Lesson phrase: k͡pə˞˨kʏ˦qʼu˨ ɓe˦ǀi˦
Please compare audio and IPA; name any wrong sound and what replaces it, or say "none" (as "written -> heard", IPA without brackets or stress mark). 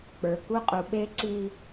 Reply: ʏ˦ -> u˦